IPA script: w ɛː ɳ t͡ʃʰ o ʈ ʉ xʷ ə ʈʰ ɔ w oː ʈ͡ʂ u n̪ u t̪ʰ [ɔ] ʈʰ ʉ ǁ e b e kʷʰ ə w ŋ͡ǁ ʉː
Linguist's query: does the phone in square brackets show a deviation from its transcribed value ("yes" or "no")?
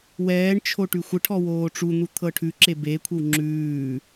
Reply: yes